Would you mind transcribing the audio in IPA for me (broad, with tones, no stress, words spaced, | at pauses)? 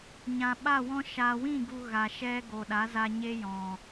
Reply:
ɲã˨ɓa˦˨wɔ̃˦ ʃa˨wĩ˦˨ ɡu˧ɣa˨ʃɛ˦ ɡo˨ɗa˨˦za˧ ɲe˦jɔ̃˨